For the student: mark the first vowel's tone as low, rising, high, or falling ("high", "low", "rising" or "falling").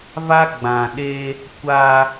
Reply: high